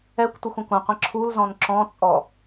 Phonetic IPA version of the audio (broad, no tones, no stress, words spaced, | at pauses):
ɛkʷtʷɘxʷ ɐ̃kʷɐ̃qʷĩ ǁʰulzɔ̃n ǁɔ̃t͡sʼɔ